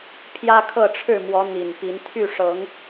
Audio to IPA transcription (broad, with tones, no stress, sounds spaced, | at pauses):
pʰ j ä˦ kʰ ɤ˥˨ ʈ͡ʂʰ ɻ̩˥˨ m w ɔ˨˦ n̪ i˨˩ n p i˨˦ n t̪ʰ y˥˨ ʂ ɤ˨˦ ŋ